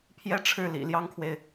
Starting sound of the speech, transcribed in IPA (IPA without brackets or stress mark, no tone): pʰ